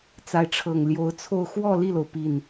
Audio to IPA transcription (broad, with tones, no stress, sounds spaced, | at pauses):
t͡s a˧˥ ɪ̯ ʈ͡ʂʰ ɤ˨˩ ŋ l j o˧˥ ʊ̯ t͡sʰ o˥˧ ʊ̯ x w ɔ˥˧ l i˥˩ l o˩ ʊ̯ p i˥˩ n